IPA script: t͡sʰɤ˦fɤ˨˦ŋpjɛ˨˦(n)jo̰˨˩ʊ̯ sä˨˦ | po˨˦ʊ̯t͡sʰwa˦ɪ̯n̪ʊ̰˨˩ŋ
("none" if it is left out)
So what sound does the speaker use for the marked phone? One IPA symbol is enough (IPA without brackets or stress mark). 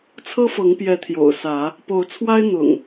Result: t̪ʰ